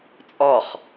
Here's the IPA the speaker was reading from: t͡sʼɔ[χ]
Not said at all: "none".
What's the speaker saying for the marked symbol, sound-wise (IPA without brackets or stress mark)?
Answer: χ